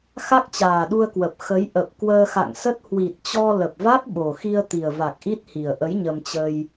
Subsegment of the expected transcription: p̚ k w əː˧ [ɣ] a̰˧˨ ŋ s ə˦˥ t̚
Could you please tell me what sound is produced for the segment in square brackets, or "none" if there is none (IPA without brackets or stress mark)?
x